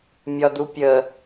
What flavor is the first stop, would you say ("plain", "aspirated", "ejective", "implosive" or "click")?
plain